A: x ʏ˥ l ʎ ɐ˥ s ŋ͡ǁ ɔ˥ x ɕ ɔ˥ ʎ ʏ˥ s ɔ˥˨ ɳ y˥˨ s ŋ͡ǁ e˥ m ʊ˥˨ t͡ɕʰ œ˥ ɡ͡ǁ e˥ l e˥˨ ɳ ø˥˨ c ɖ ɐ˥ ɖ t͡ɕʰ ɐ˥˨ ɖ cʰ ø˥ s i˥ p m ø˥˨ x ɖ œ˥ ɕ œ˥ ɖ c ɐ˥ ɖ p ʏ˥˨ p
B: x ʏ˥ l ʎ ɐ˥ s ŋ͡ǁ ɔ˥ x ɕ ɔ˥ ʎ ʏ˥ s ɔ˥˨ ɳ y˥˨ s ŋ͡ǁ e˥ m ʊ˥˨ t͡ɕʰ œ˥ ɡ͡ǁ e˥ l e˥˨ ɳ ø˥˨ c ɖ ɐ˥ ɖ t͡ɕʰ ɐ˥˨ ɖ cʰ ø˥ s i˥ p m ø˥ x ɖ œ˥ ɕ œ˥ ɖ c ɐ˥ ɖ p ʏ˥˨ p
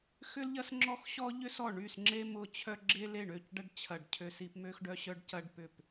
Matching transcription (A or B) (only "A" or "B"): B